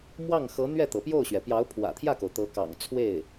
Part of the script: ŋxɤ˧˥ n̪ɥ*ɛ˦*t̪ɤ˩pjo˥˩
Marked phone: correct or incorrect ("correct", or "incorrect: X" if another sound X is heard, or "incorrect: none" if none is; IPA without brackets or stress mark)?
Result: incorrect: ɛ˥˩